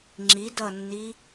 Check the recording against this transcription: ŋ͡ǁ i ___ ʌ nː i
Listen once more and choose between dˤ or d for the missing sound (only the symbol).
d